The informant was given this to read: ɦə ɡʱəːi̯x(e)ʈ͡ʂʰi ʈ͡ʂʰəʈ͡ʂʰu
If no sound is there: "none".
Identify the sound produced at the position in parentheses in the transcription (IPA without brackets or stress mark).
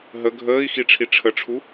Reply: i